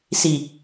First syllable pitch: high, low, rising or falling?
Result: low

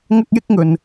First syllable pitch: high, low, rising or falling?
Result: high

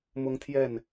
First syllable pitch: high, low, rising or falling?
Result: high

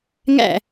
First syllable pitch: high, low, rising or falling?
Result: falling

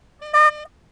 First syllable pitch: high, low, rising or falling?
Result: high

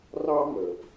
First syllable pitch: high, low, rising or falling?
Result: high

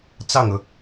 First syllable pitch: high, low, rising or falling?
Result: falling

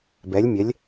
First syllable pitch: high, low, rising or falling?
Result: rising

